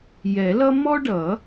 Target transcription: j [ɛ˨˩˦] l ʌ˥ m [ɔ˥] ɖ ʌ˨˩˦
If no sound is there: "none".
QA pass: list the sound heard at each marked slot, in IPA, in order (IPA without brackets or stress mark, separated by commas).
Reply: ɛ˨˩˦, ɔ˥